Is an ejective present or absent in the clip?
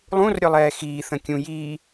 absent